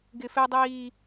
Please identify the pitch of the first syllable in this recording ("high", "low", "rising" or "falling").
high